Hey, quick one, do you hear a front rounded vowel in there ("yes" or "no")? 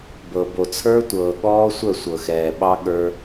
yes